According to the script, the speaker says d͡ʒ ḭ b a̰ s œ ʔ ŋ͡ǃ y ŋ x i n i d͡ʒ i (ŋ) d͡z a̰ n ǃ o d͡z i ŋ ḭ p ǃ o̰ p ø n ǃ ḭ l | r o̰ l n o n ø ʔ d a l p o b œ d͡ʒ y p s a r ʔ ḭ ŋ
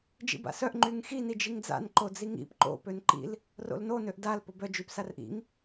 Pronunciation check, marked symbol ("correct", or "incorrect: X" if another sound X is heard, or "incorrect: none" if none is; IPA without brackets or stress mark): correct